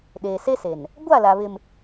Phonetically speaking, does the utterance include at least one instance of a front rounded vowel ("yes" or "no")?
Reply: no